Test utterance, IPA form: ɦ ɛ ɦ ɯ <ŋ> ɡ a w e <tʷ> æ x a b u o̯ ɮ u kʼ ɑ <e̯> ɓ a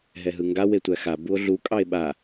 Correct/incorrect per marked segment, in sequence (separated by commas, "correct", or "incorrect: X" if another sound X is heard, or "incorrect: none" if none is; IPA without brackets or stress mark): correct, correct, correct